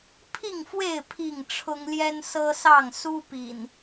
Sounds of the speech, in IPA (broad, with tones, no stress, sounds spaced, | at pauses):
pʰ i˥˨ ŋ f w e˥˨ ɪ̯ pʰ i˥˨ ŋ ʈ͡ʂʰ ʊ˦ ŋ l j ɛ˦ n s ɤ˦ s ɑ˥˨ ŋ s u˦ p ḭ˨˩ n